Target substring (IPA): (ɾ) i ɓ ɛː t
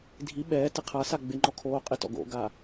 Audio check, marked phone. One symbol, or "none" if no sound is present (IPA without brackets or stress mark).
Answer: dʱ